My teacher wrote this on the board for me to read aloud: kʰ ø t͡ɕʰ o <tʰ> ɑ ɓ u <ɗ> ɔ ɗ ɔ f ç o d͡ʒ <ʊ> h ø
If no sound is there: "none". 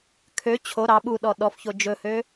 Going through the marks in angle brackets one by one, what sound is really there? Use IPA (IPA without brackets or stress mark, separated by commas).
ɾ, ɗ, ɵ